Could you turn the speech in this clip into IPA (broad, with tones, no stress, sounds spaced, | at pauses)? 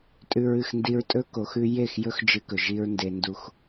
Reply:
tʼ ʉ˧ ɹ ɨ˦˨ x n d i˧ ɹ tʼ ɵ˦ k o˨ x ʉ˧ j e˦˨ x j ɵ˦ x d͡ʒ ɨ˧ k ɵ˨ ʒ i˧ ɹ n d e˧ n d u˧ x